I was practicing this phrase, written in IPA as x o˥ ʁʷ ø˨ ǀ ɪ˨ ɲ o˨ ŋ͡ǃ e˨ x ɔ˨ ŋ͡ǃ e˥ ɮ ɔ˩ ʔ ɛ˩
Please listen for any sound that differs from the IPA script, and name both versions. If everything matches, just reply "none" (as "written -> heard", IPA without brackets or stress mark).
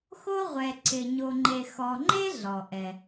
ø˨ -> ɛ˨